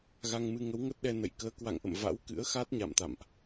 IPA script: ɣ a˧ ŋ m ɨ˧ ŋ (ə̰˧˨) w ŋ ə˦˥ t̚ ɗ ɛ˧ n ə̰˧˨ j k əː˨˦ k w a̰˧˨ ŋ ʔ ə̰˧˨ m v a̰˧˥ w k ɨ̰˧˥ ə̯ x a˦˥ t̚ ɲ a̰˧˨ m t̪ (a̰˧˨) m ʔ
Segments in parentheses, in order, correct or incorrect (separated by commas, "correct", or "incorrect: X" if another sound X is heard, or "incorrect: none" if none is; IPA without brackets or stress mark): incorrect: ə˨˦, correct